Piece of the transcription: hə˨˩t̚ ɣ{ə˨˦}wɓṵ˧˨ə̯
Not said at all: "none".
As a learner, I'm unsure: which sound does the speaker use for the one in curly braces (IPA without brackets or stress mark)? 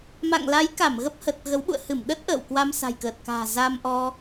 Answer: ə˨˦